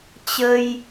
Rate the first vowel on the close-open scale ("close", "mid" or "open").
mid